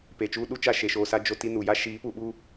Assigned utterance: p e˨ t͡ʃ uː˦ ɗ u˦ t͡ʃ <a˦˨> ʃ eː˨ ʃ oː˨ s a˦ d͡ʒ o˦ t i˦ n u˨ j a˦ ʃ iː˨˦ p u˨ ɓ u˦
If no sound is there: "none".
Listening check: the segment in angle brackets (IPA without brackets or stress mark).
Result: a˦˨